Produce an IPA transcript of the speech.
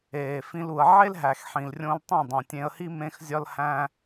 eː˨ f ĩ˧ l u˨ ə̯ ʕ e˦ l ɦ æ˨ x ħ ĩ˨ l rʲ õ˧ l tˤ õ˦˨ dˤ õ˨ tʲ ẽ˧ ə̯ h i˦ m ẽ˦ x zʲ ɒ˦ l h æ̃˦

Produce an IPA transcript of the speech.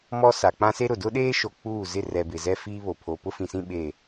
m ɔ˦ s a˨ k͡p ã˦ s e˦ ɾ ʊ˨ d ʊ˦ ɗ eː˦ ʃ o˨ k͡p uː˦˨ z ɪ˦˨ r ɛ˨ b ɪ˨ z ɛ˦ f iː˦ β o˨ pʰ o˨ p ʊ˦ f ĩ˨ s ĩ˦ ɓ e˦˨

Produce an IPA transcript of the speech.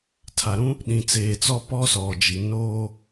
tʰ a˨ ɾ ũ˦ | ɗ ĩ˨ t͡s eː˨ t͡s ɔ˦ p ɔ˦ s ɔ˨ d͡ʒ i˨ n oː˦

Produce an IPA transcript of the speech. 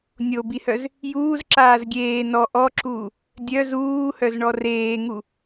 nʲ o b i h œ z | j uː z ǁ aː z ɡʲ eː n ɔ ʔ ɔ ǁ uː | dʲ œ z uː h œ z ɳ ɔ r eː ŋ u

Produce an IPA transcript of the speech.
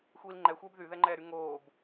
xʷ iː l ŋ͡ǃ ɛ xʷ ɛː b ð y ð ɛ ŋ͡ǃ ɛː ɾ y ŋ oː b

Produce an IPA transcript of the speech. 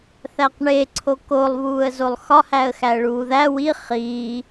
θ æ q ɳ e ǀʰ o k o lˠ β uː ə̯ z o lˠ x ɒ h æ ə̯ x æ ə̯ ɭ uː ð æ w i χ iː

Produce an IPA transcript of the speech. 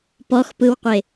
p ɔ x p ɯ w qʷ e

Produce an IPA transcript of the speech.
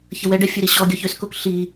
ç ə w ɛ ɖ ɛ fʲ ø ɾ i ɕ ɔ ɡʲ ɔ ç ø s k o k ɬ i

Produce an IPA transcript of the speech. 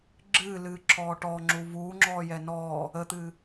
ɡ͡ǁ ɨː l ɨː ǁʰ ɔː ʈ ɔ ŋ͡ǁ u v uː ŋ͡ǁ ɔː j ɛ n ɔː | ə t̪ ɨː

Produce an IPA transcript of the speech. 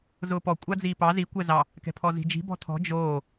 z ʊː p ɔ kʷʼ a d͡z iː p ɑ z i kʷ ɛ z ɑ | k ɛ̤ pʰ ɔ z i̤ d͡ʒ i̤ b ɔ̤ tʰ ɔ̤ d͡ʒ oː

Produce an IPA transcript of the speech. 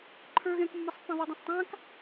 ǃʰ ə˞ ɣ ɛ̃ k mː ʌ sˤ pː ã ðˤ i dˤ ã sˤ tˤ ã k

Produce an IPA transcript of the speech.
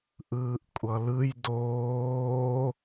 ʔ ɯː ʔ kʷʼ ʌ l ɯ j d oː

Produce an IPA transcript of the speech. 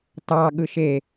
t ɑ ɠ ɯ ʃ e

